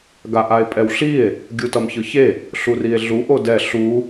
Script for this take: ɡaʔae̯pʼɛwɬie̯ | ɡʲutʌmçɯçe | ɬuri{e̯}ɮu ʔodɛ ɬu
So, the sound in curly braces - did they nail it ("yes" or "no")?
yes